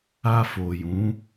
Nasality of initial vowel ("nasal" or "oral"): oral